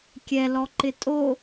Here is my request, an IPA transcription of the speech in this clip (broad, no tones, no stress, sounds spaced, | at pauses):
kʲ ɛ l ɔ ǃ ɪ tʼ o